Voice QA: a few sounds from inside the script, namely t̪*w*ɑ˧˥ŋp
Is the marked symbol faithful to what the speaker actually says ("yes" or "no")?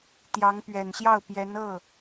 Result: no